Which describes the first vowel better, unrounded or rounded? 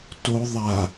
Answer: rounded